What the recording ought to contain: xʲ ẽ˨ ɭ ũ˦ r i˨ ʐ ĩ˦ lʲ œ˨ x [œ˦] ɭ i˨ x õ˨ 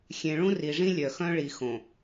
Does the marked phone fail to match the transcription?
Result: yes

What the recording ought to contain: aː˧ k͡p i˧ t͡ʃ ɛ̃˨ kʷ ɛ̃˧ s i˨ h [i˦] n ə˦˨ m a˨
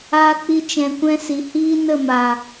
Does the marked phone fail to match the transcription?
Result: yes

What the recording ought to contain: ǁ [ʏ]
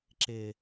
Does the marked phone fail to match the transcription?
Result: yes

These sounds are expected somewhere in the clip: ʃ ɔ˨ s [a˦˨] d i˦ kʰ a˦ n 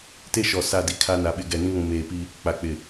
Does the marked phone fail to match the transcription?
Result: no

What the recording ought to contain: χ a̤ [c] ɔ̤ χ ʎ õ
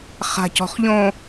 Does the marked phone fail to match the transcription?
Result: no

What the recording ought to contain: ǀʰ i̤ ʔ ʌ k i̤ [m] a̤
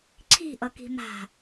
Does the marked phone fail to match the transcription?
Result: no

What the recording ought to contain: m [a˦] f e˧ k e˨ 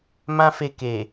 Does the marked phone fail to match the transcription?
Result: yes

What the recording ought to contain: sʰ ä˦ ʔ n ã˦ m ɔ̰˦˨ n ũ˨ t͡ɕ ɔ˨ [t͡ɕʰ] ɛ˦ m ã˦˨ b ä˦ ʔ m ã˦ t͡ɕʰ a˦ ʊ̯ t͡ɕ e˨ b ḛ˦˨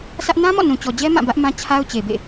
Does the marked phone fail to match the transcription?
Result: yes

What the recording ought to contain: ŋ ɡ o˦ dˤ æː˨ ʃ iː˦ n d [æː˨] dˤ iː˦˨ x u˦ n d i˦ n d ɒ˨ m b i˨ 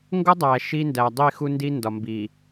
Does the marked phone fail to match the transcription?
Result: no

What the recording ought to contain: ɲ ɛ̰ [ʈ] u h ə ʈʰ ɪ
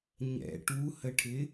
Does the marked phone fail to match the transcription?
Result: no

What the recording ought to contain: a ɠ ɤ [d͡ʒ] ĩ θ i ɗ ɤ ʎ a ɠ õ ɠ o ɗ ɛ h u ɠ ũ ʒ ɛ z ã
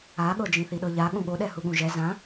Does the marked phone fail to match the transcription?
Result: no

